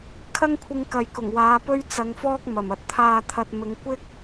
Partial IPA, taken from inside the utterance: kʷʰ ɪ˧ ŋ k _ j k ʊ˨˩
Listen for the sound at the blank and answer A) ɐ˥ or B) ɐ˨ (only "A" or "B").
B